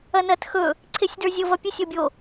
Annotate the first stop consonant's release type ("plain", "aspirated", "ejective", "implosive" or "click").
plain